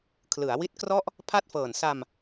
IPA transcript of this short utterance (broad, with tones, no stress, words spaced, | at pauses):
kʰlɯ˩˦a̯wi˦˥t̚krɔ˥˩ʔ | pʰa˥˩t̚fɤː˨˩n sa˧m